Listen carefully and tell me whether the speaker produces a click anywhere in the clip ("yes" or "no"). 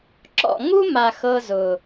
yes